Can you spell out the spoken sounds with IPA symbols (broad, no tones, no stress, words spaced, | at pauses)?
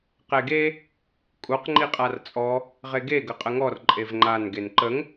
qeɡe | kʼuq ŋ͡ǃiqʼart͡sʼɔ | ʁeɡe ɡəqʼəŋɔr ǃʼevŋ͡ǃan ɡenǃəŋ